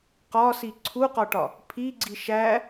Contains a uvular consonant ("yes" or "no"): yes